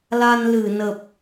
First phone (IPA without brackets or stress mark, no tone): l